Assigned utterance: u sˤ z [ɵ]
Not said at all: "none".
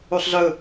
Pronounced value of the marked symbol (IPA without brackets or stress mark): ɵ